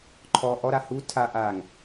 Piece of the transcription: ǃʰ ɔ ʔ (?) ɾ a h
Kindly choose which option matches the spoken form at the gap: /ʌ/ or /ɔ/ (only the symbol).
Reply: ɔ